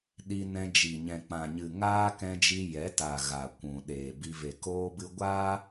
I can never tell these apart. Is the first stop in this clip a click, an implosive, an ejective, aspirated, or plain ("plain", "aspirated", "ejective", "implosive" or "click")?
implosive